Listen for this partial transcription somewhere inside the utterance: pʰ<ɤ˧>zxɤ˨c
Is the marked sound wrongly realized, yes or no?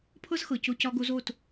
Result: yes